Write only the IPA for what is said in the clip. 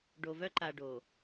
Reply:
ɖo˨vœ˦ǃa˨ɖo˨

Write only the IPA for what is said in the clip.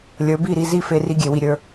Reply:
lʲə˞˨˦bi˦˨ɾi˧zi˦˨ fe˧ri˧ɡʲe˨wi˨ ɾʲə˞˧

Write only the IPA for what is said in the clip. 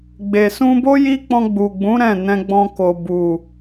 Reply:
ɡ͡be˨sũ˧bo˦ ji˦k͡pɔ̃˧ɡ͡bu˨ɡ͡bũ˨˦ ɾɛ̃˦˨ nɛ̃˧ɡ͡bɔ̃˧ko˨ bu˨

